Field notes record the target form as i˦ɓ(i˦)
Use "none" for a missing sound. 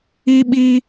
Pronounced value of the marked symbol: i˦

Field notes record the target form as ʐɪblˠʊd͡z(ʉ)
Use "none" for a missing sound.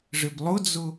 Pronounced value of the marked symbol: ʊ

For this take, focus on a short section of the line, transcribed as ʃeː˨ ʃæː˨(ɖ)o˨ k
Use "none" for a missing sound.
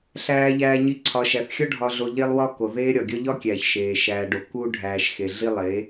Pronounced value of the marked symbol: ɖ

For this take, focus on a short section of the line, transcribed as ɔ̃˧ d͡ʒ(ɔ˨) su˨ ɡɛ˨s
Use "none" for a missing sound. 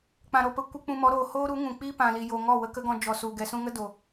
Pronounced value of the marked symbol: ɔ˨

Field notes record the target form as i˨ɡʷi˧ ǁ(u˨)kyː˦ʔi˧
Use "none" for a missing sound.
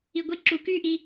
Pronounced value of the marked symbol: u˨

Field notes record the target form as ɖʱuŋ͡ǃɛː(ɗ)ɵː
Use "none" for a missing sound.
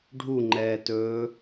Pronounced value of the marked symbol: t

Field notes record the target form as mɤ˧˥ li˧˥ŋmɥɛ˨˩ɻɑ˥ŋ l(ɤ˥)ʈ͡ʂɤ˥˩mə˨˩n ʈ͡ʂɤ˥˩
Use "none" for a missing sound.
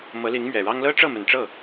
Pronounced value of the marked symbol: ɤ˥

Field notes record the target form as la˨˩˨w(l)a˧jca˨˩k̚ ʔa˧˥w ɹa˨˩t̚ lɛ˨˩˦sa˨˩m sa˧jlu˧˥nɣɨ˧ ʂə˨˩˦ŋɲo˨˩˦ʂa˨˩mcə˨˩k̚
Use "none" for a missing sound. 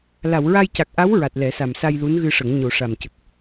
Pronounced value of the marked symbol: ɹ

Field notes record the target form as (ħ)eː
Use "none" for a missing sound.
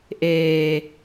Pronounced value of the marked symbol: ʔ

